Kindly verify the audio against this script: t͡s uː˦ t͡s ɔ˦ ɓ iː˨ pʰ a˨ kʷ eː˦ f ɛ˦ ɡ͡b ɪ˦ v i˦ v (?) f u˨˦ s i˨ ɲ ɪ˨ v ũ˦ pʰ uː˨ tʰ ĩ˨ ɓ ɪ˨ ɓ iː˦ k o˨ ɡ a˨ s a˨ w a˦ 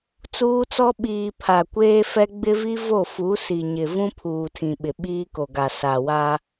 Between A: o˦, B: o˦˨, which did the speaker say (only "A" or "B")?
B